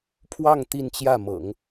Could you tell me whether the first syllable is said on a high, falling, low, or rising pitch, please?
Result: falling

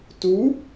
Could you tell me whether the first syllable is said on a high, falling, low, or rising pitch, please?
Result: rising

